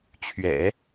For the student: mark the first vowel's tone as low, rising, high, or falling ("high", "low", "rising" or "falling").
low